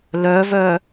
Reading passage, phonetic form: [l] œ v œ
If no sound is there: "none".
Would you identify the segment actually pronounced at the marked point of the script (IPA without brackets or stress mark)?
l